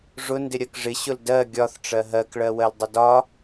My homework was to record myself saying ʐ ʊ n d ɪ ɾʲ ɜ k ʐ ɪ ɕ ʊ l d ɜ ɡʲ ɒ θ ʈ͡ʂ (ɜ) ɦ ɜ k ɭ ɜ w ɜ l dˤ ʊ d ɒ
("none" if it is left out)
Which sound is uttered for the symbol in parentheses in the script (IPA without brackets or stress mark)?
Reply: ɜ